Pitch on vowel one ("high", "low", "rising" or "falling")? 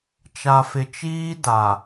low